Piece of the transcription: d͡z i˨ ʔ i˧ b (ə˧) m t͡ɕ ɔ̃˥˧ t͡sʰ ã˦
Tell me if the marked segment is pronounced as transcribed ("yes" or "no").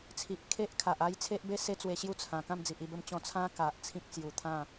yes